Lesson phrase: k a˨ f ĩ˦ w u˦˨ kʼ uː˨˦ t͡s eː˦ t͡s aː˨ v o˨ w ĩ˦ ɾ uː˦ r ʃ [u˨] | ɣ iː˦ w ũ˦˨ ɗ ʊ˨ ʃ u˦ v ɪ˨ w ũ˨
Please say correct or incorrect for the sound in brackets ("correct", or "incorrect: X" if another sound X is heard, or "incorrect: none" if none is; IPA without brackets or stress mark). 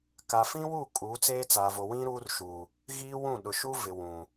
incorrect: uː˨